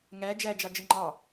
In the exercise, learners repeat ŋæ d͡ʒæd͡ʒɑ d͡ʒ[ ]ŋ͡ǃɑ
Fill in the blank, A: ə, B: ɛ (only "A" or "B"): A